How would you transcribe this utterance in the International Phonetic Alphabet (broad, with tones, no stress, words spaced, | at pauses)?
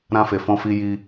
ɾã˧fe˨fɔ̃˧fi˧ ji˧